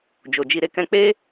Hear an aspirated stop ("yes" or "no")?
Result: no